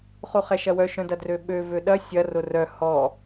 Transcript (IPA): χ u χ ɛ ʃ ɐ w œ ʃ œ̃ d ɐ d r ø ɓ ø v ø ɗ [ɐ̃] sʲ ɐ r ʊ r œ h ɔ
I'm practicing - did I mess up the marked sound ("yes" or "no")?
yes